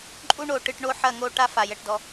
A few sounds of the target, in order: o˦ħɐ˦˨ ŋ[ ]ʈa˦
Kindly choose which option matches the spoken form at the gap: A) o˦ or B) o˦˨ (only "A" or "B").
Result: B